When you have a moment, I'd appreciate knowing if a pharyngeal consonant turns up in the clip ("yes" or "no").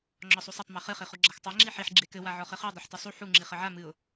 yes